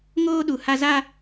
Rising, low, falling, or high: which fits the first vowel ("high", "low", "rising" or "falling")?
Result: high